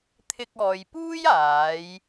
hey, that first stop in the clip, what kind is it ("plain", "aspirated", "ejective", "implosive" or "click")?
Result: aspirated